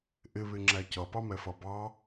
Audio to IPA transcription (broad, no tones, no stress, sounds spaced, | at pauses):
ʔ ɪ β ɪ ŋ͡ǁ æ c ʌ p ɑ m ɛ f ʌ b ɑ